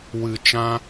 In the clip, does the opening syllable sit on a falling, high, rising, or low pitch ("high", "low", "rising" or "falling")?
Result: low